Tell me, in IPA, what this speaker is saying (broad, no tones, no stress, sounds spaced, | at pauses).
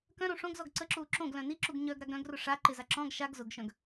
k œ̃ ɾ õ ʂ õ ɡ z ɔ ɡ ǀ ə ǁ uː ǁ õ ɡ l œ̃ n i ǁ u ɡ ɲ œ ɡ ɾ a ɡ ɾ œ̃ ɡ r ʊ ʂ a ǃ ɪ z a ǁ ɔ̃ ɡ ʃ a ɡ z ʊ ɡ ʃ œ̃ ɡ